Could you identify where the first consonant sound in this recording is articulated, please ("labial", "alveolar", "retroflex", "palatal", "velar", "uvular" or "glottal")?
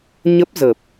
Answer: palatal